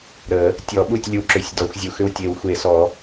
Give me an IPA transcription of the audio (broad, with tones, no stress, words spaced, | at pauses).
ɾə˨˩˦ | tʲɔ˨˩˦ɓu˥˩tʲlʲu˨˩˦ ǁʏ˨˩˦sʲ dɔ˨˩˦xʷzʲu˨˩˦x ʏ˥˩wtʲe˨˩˦wxʷe˨˩˦sɔ˨˩˦